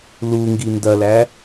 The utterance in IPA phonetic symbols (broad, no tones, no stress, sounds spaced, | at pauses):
l u ŋ ɡ i n d ɐ l æ